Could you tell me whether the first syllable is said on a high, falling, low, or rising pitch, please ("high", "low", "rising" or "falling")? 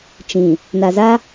low